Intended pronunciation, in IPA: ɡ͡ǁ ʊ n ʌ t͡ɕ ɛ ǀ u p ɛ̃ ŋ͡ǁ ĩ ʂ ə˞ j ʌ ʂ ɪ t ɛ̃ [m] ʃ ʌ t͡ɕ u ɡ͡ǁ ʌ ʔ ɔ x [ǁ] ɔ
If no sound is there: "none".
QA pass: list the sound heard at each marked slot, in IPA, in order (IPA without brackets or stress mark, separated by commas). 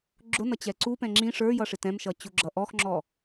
m, ŋ͡ǁ